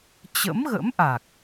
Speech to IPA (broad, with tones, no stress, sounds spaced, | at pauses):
t͡ɕ ə̰˧˥ m ɣ ə̰˧˥ m ʔ a˨˩ k̚